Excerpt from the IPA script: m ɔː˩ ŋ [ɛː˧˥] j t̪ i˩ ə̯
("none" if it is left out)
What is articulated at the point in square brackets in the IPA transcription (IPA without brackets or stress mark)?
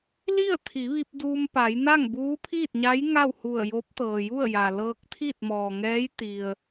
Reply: ɛː˧˥